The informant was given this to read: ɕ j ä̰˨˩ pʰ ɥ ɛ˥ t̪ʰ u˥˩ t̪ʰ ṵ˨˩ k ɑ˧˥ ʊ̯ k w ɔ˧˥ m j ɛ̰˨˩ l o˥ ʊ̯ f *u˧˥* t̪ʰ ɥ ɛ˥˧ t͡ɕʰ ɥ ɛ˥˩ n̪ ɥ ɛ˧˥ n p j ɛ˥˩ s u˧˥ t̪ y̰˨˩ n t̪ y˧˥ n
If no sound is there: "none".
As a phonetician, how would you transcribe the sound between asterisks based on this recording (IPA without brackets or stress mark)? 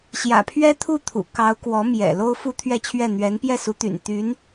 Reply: u˥